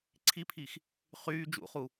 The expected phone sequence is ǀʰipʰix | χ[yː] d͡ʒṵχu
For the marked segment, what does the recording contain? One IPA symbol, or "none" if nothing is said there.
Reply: yː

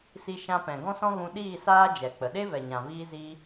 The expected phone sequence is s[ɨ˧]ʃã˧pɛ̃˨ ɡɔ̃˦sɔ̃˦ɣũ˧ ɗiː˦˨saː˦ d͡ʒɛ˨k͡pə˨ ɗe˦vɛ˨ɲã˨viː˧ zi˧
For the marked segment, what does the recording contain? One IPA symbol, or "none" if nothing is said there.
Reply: i˧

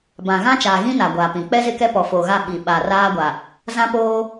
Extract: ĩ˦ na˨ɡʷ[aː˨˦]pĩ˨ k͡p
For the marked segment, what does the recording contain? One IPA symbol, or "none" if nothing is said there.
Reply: aː˨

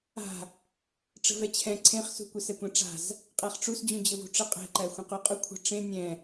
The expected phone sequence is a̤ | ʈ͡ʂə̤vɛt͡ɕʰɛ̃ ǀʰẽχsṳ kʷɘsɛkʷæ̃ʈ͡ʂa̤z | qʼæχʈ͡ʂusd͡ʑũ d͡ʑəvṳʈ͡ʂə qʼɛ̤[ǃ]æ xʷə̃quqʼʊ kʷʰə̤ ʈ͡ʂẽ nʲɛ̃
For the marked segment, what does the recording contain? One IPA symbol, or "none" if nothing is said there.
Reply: ǃ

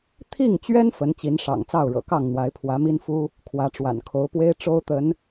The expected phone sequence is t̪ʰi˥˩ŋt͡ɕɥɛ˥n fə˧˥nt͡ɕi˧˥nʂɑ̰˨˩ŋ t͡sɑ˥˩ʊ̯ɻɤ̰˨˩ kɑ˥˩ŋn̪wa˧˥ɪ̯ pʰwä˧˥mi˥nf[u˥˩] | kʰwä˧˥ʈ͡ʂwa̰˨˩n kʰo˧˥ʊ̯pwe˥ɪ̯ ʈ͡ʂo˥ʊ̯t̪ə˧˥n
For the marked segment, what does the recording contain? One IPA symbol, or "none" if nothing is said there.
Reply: u˥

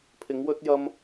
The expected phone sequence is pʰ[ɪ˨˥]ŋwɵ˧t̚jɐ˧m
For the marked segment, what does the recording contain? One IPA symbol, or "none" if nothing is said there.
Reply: ɪ˨˧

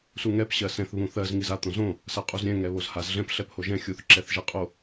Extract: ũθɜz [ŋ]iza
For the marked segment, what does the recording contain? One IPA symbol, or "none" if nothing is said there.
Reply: ŋ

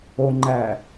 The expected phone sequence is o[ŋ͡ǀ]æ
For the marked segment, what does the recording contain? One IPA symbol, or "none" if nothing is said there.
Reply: ŋ͡ǃ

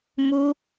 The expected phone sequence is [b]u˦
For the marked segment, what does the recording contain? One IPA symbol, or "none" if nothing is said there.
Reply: m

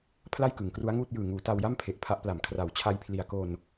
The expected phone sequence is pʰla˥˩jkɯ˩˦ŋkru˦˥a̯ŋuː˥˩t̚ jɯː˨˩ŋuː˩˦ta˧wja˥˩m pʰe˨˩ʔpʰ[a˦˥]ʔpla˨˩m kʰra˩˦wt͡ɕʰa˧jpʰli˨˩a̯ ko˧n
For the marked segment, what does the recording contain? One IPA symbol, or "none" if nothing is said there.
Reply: a˦˥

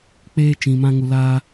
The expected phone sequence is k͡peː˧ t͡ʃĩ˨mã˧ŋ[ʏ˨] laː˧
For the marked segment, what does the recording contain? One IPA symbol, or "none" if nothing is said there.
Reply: u˨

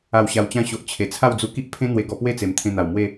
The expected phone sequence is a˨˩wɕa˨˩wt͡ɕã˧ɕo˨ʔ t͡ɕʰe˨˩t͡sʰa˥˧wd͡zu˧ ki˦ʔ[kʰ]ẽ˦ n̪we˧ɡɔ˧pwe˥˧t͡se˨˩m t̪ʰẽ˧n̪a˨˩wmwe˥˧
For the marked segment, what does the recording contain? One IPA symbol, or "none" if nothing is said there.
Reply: pʰ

